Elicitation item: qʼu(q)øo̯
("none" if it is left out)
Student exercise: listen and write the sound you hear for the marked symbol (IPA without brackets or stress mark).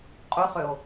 χ